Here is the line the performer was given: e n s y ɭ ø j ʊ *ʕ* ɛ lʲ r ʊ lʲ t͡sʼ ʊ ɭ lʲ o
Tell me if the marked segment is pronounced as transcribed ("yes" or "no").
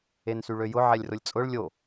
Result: yes